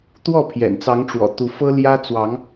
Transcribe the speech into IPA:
t̪ w ɔ˥˨ pʰ j ɛ̰˨˩ n t͡s ɑ˨˦ ŋ ʈ͡ʂ w ɔ̰˨˩ t̪ u˨˦ f ɤ˦ l j ä˦ t͡s w ɑ˨˦ ŋ

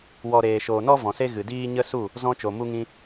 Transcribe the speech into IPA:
w ɔ˨ ɾ eː˨ ʃ oː˨ n ɔ˦ v ɔ̃˨ s e˦ ɣ ɨ˨ d iː˦ ɲ ə˦ s u˦˨ | z ɔ̃˧ t͡ʃ o˨ m u˧ ŋ ĩ˧

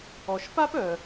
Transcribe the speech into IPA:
ɔ˩ ʃ p a˥ p œ˩

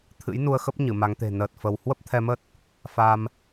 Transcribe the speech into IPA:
t̪ʰ ɨ̰˧˥ j n u˧ ə̯ x ə˦˥ p̚ ɲ ɨ˧˩ m a˨˦ ŋ t̪ e̤˨˩ n əː˨˩ t̚ f ə˧ w h w ə˦˥ p̚ t̪ʰ ɛ˧ m ə˦˥ t̚ | f a˧ m

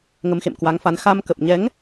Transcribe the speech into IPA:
ŋ ə˨˦ m x ḛ˧˨ m k w a˨˦ ŋ f a˨˦ n x a˧ m k ə˨˩ p̚ ɲ ɛ˨˦ ŋ

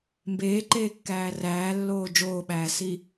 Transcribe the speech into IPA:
m b eː ǃ eː kː æː r æː lː oː d͡ʒ oː ɓ æː s i

